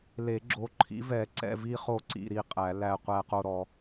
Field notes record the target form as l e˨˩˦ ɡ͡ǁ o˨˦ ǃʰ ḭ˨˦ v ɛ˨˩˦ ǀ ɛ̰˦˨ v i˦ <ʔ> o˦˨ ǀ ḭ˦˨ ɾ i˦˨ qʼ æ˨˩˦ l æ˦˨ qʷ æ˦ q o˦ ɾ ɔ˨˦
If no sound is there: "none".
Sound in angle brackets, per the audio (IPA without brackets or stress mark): χ